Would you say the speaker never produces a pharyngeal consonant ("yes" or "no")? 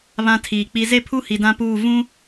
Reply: yes